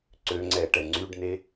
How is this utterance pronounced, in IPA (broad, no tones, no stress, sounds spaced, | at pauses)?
ǀ ø ŋ͡ǀ ɛ ʈ ɛ ŋ͡ǀ y ɖ n e